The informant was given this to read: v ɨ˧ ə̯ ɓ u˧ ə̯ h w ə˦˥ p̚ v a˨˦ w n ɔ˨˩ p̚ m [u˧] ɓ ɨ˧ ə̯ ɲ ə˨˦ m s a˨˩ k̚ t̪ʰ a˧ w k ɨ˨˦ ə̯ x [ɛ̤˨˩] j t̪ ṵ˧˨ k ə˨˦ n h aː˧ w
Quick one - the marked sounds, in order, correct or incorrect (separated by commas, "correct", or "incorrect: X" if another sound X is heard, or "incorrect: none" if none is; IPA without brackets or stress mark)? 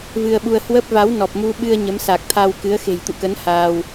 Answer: correct, incorrect: e̤˨˩